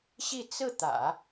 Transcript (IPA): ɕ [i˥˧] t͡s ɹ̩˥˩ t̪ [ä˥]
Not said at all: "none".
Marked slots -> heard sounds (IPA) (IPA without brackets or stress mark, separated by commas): i˥˧, ä̰˨˩˦